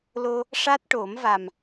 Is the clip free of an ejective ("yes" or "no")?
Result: yes